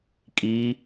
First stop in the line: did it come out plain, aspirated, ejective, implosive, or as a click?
ejective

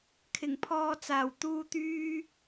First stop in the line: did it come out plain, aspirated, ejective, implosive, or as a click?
aspirated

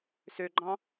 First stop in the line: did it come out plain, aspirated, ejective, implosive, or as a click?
click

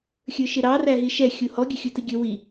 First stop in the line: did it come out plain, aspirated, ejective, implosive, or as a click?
plain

